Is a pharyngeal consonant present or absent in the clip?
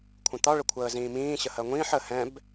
present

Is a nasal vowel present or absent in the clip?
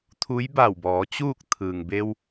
absent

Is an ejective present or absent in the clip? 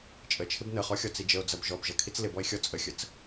present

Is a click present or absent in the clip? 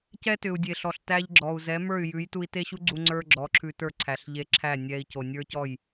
present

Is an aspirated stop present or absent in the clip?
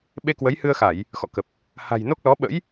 absent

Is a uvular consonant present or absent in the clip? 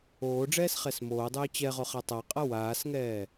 present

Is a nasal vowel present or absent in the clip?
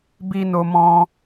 present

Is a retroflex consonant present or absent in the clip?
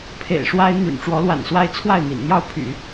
present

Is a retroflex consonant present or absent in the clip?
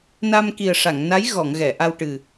present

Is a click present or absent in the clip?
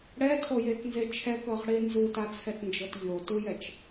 absent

